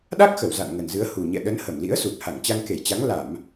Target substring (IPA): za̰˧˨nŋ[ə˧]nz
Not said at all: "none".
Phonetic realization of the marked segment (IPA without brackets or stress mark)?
ə˨˩